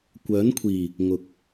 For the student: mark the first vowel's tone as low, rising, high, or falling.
rising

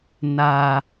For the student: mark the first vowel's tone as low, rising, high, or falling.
low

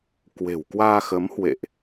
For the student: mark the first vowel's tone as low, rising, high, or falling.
low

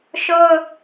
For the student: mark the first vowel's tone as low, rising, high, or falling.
high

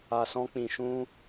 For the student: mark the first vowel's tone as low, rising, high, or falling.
low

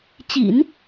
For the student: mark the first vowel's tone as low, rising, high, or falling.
low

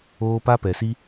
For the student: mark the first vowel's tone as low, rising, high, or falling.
high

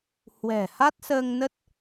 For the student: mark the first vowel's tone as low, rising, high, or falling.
low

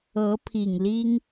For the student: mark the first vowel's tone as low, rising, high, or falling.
rising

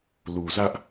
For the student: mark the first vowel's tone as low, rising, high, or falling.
low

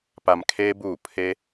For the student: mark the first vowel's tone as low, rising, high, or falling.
low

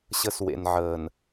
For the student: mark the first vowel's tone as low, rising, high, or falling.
high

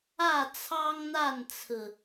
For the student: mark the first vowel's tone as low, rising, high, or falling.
falling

